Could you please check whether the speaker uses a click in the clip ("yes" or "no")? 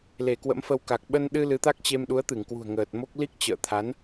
no